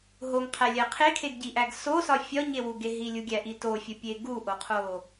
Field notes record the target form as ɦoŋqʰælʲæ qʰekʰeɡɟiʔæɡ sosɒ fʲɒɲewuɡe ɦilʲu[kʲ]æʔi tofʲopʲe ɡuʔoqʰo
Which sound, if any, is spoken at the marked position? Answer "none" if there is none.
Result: ɡʲ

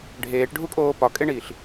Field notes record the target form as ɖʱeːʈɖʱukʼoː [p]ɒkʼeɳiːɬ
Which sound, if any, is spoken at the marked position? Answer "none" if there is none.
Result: p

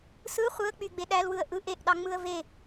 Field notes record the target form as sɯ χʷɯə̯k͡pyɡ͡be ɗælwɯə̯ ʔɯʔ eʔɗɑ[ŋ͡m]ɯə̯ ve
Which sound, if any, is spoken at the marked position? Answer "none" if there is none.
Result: ŋ͡m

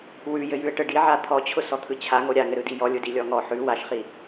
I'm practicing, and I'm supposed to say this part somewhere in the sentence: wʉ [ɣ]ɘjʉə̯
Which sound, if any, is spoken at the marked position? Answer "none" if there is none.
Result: j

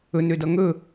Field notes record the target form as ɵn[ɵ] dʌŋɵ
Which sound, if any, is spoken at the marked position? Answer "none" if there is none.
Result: ø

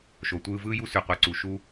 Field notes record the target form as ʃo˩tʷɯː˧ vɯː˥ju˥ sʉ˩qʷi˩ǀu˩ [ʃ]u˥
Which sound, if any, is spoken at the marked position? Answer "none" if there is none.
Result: ʃ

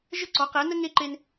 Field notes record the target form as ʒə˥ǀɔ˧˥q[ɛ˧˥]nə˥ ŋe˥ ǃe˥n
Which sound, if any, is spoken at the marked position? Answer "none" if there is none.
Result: ɛ˧˥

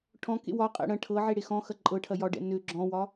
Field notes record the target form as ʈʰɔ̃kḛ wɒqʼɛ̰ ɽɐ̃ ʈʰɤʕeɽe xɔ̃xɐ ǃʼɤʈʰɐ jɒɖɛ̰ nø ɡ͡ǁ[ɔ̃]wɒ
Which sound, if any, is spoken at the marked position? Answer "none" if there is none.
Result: ɔ̃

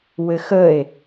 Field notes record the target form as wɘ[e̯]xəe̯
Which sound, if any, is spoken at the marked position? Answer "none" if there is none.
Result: none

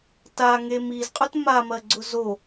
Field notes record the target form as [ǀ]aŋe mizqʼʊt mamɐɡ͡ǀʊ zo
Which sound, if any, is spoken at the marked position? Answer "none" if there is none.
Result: t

